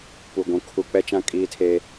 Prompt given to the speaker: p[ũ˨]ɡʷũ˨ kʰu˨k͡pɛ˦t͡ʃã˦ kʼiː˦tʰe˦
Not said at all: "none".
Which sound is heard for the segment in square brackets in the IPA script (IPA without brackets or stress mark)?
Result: u˨